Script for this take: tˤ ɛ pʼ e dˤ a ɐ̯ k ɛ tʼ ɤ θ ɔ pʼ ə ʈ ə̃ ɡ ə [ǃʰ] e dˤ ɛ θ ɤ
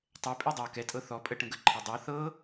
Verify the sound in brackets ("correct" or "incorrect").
correct